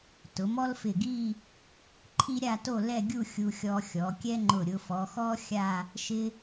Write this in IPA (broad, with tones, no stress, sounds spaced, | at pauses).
t ʊ˩˧ m ɔ˥ l f ɪ˧˩ ɡ i˥˧ | ǃʰ i˥ ɾʲ a˥˧ t o˥˧ l ɛ˥˧ ɡʲ u˥˧ xʲ u˧ xʲ ɔ˧ xʲ ɔ˩˧ kʲ ɛ˥ ŋ͡ǃ ʊ˧˩ ɾʲ ʊ˧ f ɔ˩˧ x ɔ˥ xʲ a˥˧ | ʃ ɪ˥